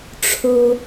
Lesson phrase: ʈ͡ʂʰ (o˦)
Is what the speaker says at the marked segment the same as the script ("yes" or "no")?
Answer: yes